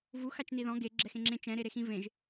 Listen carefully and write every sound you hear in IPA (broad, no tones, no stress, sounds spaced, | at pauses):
v u x a t͡ʃ n i ð ɔ̃ ɡ e ɡ͡ǁ ɛ x ẽ ŋ͡ǁ ẽ t͡ʃ ɛ̃ ɾ e ɾ e x ĩ v ẽ ʒ